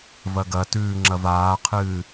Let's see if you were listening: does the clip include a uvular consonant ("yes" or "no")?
yes